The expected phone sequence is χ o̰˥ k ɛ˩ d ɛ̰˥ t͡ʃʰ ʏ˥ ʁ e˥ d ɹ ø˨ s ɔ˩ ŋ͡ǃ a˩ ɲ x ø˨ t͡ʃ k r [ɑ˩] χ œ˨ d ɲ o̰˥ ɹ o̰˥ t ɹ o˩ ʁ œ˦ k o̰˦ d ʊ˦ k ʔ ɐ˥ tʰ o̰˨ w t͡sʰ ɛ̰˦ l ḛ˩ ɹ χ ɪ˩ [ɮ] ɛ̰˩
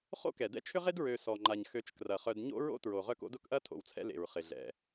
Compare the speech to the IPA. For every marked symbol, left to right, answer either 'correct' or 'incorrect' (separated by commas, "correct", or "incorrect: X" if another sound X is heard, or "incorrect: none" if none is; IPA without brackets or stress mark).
incorrect: ɐ˩, correct